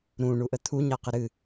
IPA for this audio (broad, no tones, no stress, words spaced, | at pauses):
ɾũ ɳuʔət̪ʰu ɲaqəɾɨ